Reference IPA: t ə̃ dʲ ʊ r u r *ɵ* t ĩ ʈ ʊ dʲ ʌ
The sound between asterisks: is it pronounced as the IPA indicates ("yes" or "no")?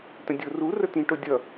no